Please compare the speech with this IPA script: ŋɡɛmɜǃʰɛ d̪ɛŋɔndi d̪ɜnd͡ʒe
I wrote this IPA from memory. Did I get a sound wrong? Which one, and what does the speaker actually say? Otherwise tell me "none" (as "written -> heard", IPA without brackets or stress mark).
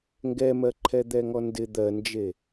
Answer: i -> ɪ